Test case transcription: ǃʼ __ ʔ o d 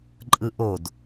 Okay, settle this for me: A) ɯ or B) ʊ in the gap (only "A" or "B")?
A